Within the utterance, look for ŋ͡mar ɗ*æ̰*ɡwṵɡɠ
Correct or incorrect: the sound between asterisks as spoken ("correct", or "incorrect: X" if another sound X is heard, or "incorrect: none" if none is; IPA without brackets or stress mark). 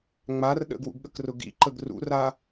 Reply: incorrect: ə̰